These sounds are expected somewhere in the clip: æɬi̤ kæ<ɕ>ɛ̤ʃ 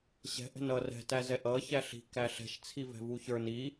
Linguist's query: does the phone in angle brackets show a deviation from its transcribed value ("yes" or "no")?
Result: yes